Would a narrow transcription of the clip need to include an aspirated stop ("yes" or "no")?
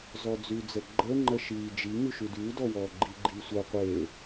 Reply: no